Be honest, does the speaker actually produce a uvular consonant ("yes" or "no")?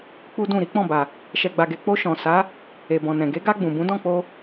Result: no